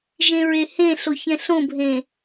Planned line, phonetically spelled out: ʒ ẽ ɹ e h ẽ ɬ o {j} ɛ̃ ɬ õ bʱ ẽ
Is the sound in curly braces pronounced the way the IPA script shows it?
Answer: no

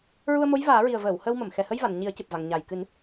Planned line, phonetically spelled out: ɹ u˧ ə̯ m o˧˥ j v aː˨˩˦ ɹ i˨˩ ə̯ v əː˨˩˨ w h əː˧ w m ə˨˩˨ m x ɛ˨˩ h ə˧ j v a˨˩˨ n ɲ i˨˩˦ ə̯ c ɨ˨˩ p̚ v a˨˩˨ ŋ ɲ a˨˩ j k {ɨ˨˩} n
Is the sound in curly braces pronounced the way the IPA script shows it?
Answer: no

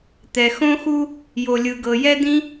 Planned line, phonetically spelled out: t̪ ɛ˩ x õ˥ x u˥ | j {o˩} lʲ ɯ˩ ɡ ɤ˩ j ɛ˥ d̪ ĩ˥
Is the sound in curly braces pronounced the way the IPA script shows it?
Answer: yes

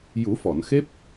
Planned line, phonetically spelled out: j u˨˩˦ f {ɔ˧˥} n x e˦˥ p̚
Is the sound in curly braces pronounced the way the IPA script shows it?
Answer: no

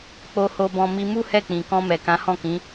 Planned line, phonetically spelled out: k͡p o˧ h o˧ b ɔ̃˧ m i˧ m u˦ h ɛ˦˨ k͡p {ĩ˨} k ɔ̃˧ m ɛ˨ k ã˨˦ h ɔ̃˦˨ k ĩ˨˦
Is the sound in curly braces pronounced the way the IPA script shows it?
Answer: yes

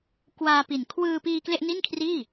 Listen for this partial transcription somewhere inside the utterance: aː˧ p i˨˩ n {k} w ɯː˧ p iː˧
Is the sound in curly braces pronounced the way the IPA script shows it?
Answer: no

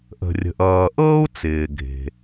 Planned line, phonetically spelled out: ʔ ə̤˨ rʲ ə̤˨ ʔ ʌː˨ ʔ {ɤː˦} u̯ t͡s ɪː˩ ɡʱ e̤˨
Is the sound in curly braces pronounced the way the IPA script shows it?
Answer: yes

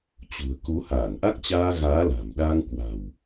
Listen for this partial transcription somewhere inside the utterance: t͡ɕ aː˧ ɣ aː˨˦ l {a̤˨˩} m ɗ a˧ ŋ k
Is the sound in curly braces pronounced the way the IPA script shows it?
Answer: yes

